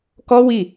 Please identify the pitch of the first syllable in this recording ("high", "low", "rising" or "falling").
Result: high